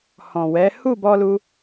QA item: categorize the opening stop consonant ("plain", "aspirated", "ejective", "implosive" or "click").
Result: plain